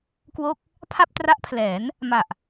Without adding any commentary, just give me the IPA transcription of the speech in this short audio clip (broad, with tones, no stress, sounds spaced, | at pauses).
k w o˥˩ k̚ | pʰ a˥˩ p̚ t r a˦˥ ʔ pʰ l ɛː˩˦ n | m a˨˩ ʔ